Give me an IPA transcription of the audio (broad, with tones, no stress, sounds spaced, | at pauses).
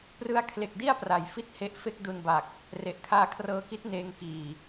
p r ɯ˧ a̯ kʰ l e˨˩ k̚ d i˥˩ a̯ p r a˩˦ j f i˥˩ t̚ h e˦˥ ʔ f e˥˩ k̚ d u˧ n b a˨˩ k̚ | r e˨˩ ʔ kʰ aː˧ kʰ r ɤː˧ k i˦˥ t̚ n eː˧ ŋ k iː˨˩